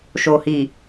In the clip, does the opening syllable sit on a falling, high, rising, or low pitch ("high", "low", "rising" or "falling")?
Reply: low